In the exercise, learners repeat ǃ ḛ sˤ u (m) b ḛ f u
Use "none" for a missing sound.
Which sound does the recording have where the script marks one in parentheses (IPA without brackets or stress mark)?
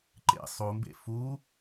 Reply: m